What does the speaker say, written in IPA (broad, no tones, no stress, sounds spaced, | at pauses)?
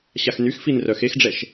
ɕ a x n y x f i n r œ x e x ɖ͡ʐ ɛ ʃ